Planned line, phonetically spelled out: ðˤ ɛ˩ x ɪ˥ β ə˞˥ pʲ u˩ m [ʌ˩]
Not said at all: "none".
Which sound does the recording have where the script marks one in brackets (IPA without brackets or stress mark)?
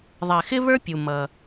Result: ʌ˩